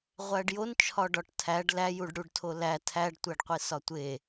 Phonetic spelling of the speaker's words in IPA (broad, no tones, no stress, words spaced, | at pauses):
ʁʷæɖjont͡ʃʰɒɖɒʈ tʰæɖ læjuɖɽuɖtʰo læ tʰæɖtʷæɖqʷi sɒtʷe